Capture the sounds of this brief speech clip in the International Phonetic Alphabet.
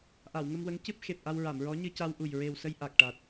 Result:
ʔ a˨˩˨ w ŋ ə˧ m w ə˧˥ ŋ c ɨ˦˥ p̚ x e˨˩ p̚ ʔ a˧ w ɹ a˨˩˨ m ɹ ɔ˧˥ ɲ ɨ˧ c a˧ w ʔ u˨˩ j ɹ e˨˩ w s ə˧ j ʔ a˨˩ k̚ ʈ a˨˩ t̚

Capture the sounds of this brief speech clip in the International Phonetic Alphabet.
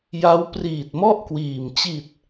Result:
j a˦˥ w p r iː˨˩ t̚ m ɔ˥˩ ʔ k w iː˨˩ m t͡ɕ i˨˩ t̚

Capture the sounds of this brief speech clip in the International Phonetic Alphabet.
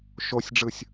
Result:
ʃ o sʲ ɖ͡ʐ ɯ sʲ

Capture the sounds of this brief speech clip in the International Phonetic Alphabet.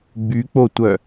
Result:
ɡ͡b y k͡p o tʷ œ

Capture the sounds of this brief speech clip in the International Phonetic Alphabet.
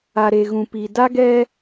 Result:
a˨ ɾ e˨ ɣ ũ˨ p i˨ d a˦ ɡ ɛ˦

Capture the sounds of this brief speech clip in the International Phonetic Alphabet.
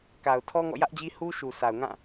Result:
k a˨ ʊ̯ tʰ ɔ˦ ŋ ɔ̰˦˨ j ä˦ ʔ d͡ʑ i˦ h u˦ ʃ u˨ sʰ a˨ ʊ̯ ŋ ã˦˨

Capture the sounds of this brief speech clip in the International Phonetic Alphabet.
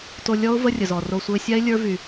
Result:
t o˧ lʲ ɔ˦ ʊ̯ v ə˧ rʲ ə˨ z ɔ˨ r o˧ sʷ ə˞˧ ɪ̯ sʲ a˦ ɪ̯ lʲ ə˞˦ v y˧

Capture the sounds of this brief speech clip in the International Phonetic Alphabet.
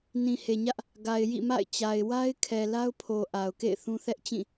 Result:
n ĩ˨ h e˨ ɲ ä˦ ʔ | ɡ a˨ ɪ̯ j ḭ˦˨ m a̰˦˨ ɪ̯ t͡ɕ a˨ ɪ̯ w a˦ ɪ̯ kʰ ɛ˨ l a˦ ʊ̯ pʰ o˨ ʔ a˨ ʊ̯ k ḛ˦˨ ɪ̯ θ ũ˦ θ ɛ˦ ʔ t͡ɕ ĩ˦˨

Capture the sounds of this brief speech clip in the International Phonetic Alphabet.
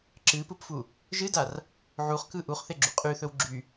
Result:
ǁ ɨ p ɯ p f u | ʒ ɨ d a r | ʕ u χ k ɯ ʔ u χ θ e ɡ͡ǁ u qʼ y θ ɵ w ɡ͡ǁ y

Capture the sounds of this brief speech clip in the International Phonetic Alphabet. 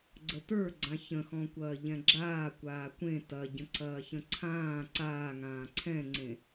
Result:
ɡ͡ǀ ə t ə˞ ɡ͡ǀ ã ç ə̃ x ɔ̃ kʷ ɐː ʎ ɛ̃ ɡ͡ǁ aː kʷ aː kʷ ẽ t ɐ ɟ ə̃ ǀ ɐː ç ə̃ ǀʰ ãː ǀ aː ŋ ãː ǀʰ ɛ̃ ŋ͡ǀ ẽ

